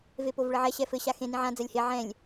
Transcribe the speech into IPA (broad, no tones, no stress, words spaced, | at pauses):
vepovɭɘʕɛ ɕɛfɘ ɕaxẽ nĩʕã d͡zɐlʲhe ʕɛ̃lʲ